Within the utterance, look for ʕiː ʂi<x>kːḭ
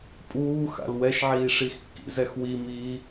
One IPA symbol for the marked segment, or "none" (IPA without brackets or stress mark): x